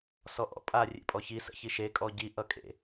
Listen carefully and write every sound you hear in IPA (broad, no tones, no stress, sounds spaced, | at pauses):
s ɔ ʔ ɔ̰ pʼ a rʲ ḛ pʼ ɔ ç i s ə̰ ç i ʃ e kʼ ɔ ɟ i ʔ ʌ kʼ ḛ